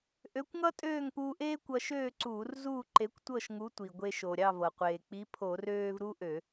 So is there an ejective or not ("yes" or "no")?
yes